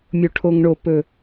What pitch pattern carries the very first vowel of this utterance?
low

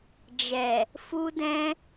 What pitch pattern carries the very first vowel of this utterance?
low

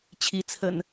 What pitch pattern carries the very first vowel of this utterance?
rising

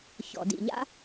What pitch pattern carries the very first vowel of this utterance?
low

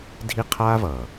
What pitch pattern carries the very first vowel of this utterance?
high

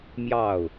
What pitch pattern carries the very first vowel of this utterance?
falling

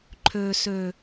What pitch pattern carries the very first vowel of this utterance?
low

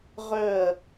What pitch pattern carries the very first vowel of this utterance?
falling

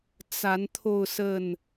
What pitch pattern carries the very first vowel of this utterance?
rising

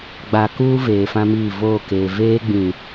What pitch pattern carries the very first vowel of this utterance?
low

